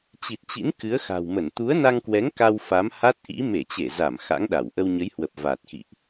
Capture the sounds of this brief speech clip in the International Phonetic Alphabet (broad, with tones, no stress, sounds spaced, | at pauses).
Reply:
t͡ɕ i˨˩ t̚ t͡ɕ ḭ˧˥ n k ɨ˨˦ ə̯ x a̤˨˩ w m ə˧˩ n t̪ u˨˦ ə̯ n a˧ ŋ k w ɛ˨˦ ŋ k a˧ w f a˨˦ m h a˦˥ t̚ ʔ ḭ˧˥ m e˧˩ t͡ɕ e˧˩ z a˧˩ m x a̰˧˥ ŋ ɗ a˧˩ w ʔ ə˧ w ɲ ə˨˦ j h w ə˨˩ p̚ v aː˨˩ t̚ x ḭ˧˨ ʔ